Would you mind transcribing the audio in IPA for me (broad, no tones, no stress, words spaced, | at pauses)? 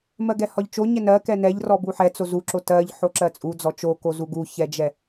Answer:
mɜɡɛhɒʎt͡ʃo ɲɛnɜ kɛnɛʎrɔ buħɛt͡so zuǁo tɜʎ ħoǁɜt͡sʼu d͡zɔt͡ʃokozu ɡuçɛd͡ʒɛ